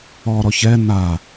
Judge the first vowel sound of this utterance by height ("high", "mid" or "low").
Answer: mid